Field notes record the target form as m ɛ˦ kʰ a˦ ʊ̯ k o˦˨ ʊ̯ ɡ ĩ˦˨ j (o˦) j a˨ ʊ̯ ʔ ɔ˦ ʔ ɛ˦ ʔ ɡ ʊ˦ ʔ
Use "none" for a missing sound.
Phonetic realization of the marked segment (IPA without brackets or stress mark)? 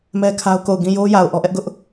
o˦